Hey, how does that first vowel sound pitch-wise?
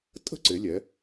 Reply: high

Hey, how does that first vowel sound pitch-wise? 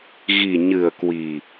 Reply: low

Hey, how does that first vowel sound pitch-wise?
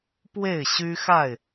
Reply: falling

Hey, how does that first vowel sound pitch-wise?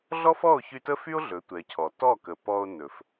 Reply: high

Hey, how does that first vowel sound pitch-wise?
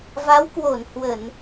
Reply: rising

